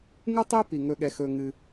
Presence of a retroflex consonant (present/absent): absent